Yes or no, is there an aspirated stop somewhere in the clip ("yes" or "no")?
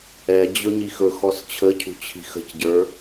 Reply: yes